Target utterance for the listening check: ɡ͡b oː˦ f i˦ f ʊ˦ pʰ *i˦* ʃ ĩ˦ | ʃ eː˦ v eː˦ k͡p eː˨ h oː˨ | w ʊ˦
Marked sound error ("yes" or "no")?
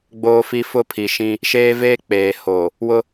yes